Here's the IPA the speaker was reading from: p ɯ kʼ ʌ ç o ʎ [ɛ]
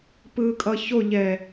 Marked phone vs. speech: correct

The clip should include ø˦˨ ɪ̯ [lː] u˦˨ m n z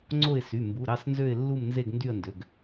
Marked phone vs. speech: correct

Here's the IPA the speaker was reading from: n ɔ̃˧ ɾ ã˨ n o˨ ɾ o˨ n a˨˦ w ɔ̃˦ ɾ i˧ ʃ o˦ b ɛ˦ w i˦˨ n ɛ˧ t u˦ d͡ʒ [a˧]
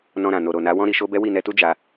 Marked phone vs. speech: correct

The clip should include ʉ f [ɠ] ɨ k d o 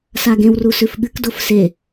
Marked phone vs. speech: correct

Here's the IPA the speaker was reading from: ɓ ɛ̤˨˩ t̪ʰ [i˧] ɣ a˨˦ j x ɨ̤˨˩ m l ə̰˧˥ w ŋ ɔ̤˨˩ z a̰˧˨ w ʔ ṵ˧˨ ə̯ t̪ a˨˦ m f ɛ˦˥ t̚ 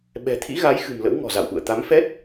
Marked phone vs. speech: incorrect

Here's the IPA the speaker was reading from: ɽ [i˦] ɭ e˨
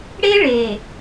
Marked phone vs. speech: incorrect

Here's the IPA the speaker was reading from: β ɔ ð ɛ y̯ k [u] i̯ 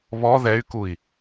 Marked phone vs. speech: correct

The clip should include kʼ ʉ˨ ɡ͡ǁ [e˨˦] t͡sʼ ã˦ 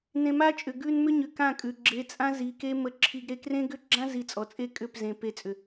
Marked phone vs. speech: correct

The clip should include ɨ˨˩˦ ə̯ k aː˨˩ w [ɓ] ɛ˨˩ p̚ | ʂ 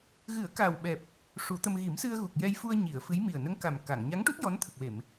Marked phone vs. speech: correct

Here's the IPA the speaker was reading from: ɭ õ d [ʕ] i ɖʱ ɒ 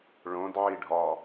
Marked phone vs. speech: correct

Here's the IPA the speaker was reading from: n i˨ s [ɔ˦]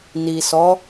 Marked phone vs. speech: incorrect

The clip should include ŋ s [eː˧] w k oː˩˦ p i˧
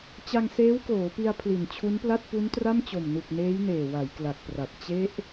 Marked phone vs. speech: incorrect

